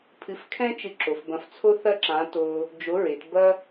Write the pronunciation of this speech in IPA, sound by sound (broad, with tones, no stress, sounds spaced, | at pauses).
pʰ ɨ˨˥ f kʰ ɛ̃˥ t͡ʃ ɨ˧ ǁ o˩˧ f b ɐ̃˧ f t͡sʰ o˥ θ ɐ˥ ǁ ã˨˥ t o˧ | d͡ʒ o˨˥ ɹ e˩˧ t b ɐ˥